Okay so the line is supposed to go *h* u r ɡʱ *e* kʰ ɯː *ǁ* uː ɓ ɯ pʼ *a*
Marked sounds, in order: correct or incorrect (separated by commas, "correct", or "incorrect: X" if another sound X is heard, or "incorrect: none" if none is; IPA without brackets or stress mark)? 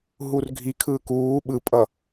incorrect: ɦ, incorrect: i, incorrect: k, incorrect: ʌ